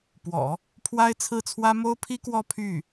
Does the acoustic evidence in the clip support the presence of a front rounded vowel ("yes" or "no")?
yes